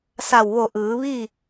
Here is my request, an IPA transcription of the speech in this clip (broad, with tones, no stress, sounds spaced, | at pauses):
s a˧˩ w ʋ o˧˩ ʔ ɯː˩˧ ʋ i˥˨